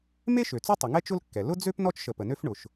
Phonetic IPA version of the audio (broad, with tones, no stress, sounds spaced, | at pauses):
m e˥ ʃ ø˩ t͡s u˥ tˤ ʏ˩ ŋ ɛ˥ t͡ʃ ʊ˥ l kː ɛ˩ l ʊ˥ d͡z ø˥ p n ɔ˥ t͡ʃ ʃ ə˩ p ə˩ n ø˥ f ɳ ʊ˩ ʃ